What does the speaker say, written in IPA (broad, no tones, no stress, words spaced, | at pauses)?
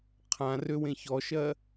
qʰãrøwẽ çɔʃɜ